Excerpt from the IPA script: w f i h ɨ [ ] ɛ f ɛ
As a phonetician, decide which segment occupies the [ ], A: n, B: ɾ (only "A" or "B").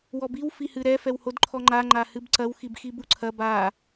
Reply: B